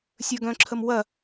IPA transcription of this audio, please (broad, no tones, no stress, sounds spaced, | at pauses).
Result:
sʲ ə˞ ɡ œ̃ ǁʰ ə m w ɐ